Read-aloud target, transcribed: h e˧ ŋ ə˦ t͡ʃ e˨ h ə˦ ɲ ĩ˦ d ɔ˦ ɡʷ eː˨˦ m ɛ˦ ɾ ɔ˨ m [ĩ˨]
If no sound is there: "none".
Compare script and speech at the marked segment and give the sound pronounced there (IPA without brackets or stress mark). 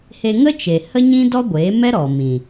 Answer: ĩ˨